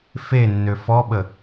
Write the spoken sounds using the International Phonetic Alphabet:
f e nː ø f ɔ ɓ ə

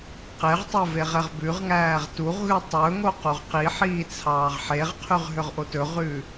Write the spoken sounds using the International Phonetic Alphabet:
q e ʁ tˤ e v e ʁ ɛ ʁ b ʉ ʁ ŋ æː ʁ t u ʁ ɣ ʉ tˤ ɵ ŋ o q u ʁ q i ħ iː t͡sʰ ɑː ʁ ħ e ʁ qʰ y ʁ ɦ ø ʁ ʔ o t ɵ ʁ ʉː

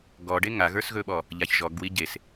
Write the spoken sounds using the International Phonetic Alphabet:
ɡ ɔ ɖ e ŋ a ɣ ə˞ s ɣ ɵ ɓ ɔ | ʎ a ç ʒ ɔ ɡ w i ɟ e s

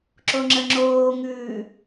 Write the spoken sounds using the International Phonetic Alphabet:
ǁ o ŋ͡ǁ ə ŋ͡ǁ oː ŋ ʉː

